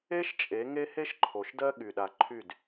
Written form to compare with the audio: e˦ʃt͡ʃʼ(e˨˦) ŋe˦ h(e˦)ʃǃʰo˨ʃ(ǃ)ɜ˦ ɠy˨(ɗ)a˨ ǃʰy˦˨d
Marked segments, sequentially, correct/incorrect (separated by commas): correct, correct, incorrect, correct